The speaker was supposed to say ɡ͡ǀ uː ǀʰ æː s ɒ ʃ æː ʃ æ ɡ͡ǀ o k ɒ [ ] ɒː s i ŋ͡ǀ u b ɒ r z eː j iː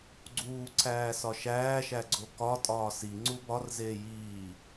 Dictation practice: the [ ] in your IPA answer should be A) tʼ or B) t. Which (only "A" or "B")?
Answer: A